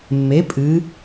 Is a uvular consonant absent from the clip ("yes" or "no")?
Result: yes